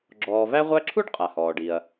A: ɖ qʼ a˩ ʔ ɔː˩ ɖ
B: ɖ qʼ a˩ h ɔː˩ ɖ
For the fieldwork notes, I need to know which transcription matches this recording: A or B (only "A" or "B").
B